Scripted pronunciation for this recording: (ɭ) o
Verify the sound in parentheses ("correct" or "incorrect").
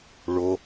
correct